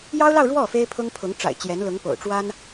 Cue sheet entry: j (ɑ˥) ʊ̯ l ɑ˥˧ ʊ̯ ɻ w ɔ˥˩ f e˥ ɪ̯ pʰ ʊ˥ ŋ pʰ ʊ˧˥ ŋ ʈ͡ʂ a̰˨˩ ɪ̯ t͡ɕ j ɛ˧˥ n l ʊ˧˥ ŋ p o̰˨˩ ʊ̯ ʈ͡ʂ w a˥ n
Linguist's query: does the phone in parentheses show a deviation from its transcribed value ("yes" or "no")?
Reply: no